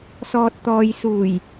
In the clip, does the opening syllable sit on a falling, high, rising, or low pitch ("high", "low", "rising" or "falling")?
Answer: low